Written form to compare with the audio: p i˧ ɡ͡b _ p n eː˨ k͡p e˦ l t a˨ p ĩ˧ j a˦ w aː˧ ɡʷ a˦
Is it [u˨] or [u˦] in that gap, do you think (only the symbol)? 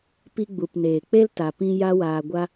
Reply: u˨